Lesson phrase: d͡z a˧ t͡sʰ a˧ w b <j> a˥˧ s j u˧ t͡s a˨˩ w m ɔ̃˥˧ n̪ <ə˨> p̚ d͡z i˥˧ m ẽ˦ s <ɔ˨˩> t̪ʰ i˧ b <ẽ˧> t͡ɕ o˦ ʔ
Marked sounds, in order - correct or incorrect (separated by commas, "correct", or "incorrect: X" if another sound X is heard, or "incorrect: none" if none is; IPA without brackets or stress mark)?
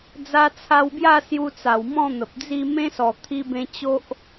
correct, correct, correct, correct